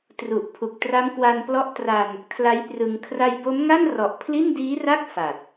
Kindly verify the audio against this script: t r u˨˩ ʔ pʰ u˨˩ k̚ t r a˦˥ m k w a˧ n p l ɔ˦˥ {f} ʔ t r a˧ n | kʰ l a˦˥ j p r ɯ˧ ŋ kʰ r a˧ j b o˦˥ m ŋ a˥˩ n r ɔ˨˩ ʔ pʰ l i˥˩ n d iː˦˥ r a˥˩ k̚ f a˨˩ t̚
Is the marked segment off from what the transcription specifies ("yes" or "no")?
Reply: yes